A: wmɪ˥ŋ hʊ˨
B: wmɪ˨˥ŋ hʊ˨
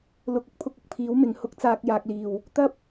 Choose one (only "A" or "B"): B